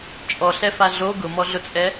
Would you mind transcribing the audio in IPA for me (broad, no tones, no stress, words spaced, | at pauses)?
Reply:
t͡ʃʼɔɬɛfa ɮo ɡʊmɔɮʊt͡sʼɛ